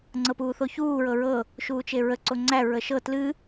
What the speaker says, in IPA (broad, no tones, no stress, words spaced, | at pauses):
ŋ͡ǀɤpuːθoçuː ɹɤɹɤ | ʃuːt͡ʃeɹə ǀoŋ͡ǀæ ɹəʃɤ tlɨ